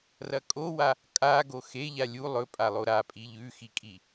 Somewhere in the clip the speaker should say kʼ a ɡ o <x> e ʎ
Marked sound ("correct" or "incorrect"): correct